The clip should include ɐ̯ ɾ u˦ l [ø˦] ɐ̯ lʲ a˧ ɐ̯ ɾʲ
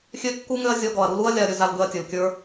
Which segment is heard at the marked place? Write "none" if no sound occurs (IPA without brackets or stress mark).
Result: u˦